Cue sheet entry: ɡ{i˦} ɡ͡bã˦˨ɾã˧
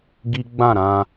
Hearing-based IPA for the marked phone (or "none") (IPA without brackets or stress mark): i˦